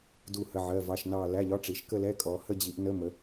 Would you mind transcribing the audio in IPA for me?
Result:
du˥˧hə˧˥˧ ʕɜ˧˥˧vɑ˧˥˧ʃnɑ˥˧ læ˧˥˧ʎɒ˧˥˧ʈ͡ʂi˨˦ʃ kə˥˧lɛ˧˥˧ kʼɔ˨˦hə˥˧ d͡ʑi˨˦ʔnə˧˥˧mə˨˦

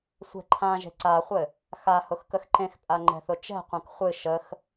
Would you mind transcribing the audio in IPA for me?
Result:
sʷɛ̤ǃʰãʒe̤ ǀaχʷɘ | xa hʊxkəxǃẽxpʼa ŋ͡ǃɛ̤θʊt͡ʃɛ̤qʷẽk χʷɨ ʃəx

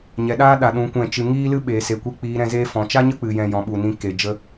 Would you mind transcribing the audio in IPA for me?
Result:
ɲɛ˨ɗaː˦ɗa˨ ɗũ˨˦kʷɛ̃˦˨t͡ʃɨ˧ ŋiː˦lɨ˦ɓeː˨ se˨kʷe˧ k͡piː˧ɾɛ̃˧zeː˦ fɔ̃˨t͡ʃa˦ɲə˦ k͡pɨ˧jɛ̃˦jɔ̃˧ ɓu˨nĩ˧ ke˨ d͡ʒə˧

